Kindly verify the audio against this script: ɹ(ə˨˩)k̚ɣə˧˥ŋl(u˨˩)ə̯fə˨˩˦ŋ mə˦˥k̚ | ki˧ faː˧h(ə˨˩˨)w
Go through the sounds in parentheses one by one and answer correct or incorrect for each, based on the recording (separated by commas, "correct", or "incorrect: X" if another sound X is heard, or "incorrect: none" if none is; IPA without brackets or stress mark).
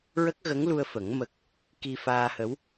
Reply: incorrect: ə˦˥, incorrect: u˧, incorrect: ə˧˥